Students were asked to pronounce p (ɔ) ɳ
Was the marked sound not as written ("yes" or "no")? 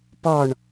no